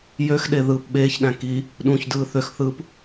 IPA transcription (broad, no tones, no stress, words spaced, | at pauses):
jøxɗe ðɯːpɓeːçɗæ̃ ki | ɗũçdɯː θøxθɯːp